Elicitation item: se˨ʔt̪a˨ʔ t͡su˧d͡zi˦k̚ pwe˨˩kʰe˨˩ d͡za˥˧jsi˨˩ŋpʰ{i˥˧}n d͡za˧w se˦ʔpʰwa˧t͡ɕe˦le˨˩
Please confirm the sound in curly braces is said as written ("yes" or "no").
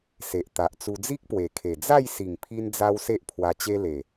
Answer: no